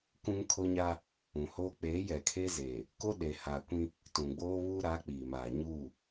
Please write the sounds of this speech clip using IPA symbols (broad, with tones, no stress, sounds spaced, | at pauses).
k ũ˦ ŋ kʰ o˦ ɲ a˦ | ũ˨ h oː˦ k͡p eː˨˦ j ɛ˨ kʰ e˦ z eː˨ | k o˦ ɗ e˨ h aː˨ kʷ ĩ˦ | t ũ˨ ɡ͡b oː˦ β uː˦ ɾ aː˨˦ k͡p iː˨ m aː˨ ɲ u˦˨